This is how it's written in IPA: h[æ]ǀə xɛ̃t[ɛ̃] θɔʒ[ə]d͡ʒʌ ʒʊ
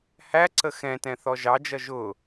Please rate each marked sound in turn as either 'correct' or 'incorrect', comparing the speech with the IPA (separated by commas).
correct, correct, incorrect